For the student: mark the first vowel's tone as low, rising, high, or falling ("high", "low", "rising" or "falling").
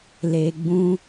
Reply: low